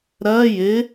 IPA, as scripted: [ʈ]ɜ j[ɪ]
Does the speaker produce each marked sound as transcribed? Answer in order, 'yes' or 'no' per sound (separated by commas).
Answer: no, yes